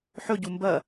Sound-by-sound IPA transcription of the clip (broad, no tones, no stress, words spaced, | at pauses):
ħɵɟu mbɐ